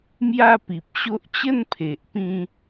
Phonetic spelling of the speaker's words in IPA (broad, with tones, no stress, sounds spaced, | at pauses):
m j a˥˧ p i˨ p̚ ɕ o˦ ʔ t͡ɕ ə˥˧ n pʰ e˨ ʔ p ĩ˦